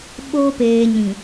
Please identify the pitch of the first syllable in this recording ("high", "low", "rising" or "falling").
low